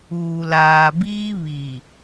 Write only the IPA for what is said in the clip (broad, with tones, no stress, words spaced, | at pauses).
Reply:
uː˨laː˨biː˦ βi˨